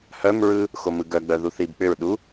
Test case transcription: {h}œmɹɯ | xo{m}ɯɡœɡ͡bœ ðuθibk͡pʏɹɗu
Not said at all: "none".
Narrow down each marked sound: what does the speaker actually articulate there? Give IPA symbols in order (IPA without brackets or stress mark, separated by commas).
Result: h, m